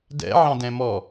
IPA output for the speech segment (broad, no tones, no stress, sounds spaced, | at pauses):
d ɛ̰ ʕ ɑ̃ d ɛ̃ m ɔ